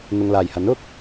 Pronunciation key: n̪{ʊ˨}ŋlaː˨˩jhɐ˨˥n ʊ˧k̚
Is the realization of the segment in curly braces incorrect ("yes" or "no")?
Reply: no